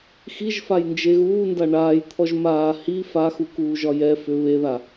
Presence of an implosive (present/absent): absent